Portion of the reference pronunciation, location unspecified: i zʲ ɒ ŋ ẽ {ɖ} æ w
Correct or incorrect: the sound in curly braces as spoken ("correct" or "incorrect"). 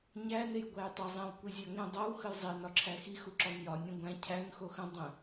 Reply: incorrect